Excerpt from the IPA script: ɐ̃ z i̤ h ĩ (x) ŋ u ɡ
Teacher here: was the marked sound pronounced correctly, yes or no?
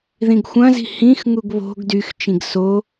yes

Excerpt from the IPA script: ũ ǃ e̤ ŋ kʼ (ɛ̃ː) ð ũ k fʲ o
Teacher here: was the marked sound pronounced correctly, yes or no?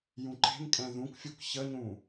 no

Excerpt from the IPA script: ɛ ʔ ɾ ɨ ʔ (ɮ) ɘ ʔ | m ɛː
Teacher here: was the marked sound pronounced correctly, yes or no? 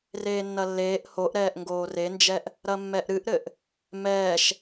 no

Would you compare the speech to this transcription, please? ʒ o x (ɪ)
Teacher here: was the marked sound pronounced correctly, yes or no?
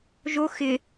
yes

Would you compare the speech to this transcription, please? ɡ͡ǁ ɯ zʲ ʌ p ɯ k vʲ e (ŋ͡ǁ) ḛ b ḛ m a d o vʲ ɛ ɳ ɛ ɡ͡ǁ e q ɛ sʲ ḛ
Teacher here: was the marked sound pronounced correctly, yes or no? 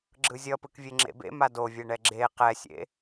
yes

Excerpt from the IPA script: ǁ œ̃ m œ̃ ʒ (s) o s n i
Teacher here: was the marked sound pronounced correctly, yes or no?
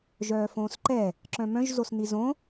no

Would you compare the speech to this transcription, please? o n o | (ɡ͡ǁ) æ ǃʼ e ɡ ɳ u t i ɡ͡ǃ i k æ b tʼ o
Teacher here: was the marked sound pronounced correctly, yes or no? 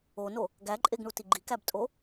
no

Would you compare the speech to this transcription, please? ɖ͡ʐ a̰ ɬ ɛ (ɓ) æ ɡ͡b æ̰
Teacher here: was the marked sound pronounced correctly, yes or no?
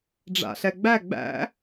no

